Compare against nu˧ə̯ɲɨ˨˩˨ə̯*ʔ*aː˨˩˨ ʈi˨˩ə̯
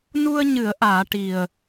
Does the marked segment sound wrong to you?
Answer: no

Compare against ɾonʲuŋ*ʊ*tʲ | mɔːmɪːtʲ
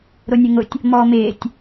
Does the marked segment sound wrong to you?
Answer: no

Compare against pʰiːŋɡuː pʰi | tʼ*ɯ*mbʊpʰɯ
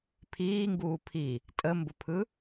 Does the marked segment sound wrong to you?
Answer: yes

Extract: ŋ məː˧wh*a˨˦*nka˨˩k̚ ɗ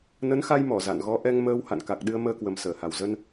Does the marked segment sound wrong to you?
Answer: yes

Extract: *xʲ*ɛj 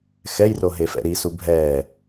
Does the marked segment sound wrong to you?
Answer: yes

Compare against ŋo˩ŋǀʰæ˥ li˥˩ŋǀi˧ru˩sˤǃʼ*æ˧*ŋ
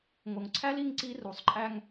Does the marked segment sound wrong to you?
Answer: no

